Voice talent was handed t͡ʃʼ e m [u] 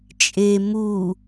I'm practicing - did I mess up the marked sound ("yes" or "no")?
no